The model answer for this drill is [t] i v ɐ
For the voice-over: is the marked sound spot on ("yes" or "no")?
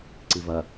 no